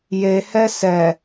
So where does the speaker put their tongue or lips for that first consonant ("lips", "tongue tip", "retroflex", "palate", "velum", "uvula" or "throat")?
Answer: palate